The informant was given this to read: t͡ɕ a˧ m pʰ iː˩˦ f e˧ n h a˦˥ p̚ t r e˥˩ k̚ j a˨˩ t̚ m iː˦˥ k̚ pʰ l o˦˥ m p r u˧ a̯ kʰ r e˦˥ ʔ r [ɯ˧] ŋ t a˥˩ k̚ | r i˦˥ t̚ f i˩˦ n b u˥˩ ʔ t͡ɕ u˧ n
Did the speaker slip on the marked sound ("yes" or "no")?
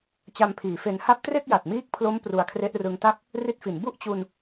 no